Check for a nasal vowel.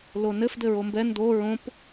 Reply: present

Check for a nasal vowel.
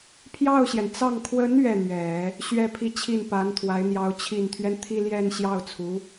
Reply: absent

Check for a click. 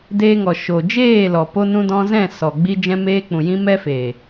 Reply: absent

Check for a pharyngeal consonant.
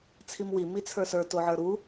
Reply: present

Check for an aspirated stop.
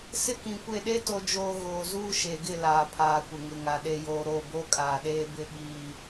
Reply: present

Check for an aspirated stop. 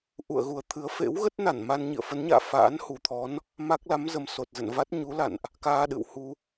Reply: present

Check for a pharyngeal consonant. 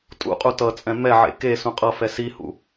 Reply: present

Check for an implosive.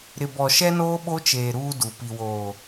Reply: present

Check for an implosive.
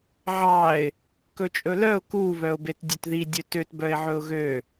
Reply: absent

